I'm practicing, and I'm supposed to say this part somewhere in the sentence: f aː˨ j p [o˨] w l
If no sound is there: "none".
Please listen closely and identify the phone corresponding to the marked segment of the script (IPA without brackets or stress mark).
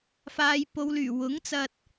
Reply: o˨